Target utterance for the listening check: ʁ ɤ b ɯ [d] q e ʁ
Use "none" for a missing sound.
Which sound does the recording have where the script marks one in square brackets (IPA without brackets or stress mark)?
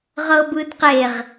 d